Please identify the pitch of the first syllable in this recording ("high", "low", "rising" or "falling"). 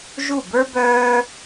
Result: falling